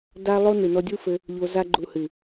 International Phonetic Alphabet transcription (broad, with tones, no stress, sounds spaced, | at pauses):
d a˦ lˠ o˦ n ɨ˨ n ɔ˧ dʲ u˦ f ɘ˧ | ʎ o˧ z a˦ ɡ͡ǃ u˧ h ɨ˨